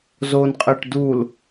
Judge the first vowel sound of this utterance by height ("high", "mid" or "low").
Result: mid